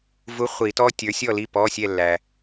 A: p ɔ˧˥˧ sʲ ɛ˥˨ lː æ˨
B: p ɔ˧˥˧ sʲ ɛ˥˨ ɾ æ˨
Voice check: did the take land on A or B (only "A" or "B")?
A